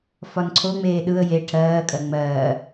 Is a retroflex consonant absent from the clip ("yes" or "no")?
no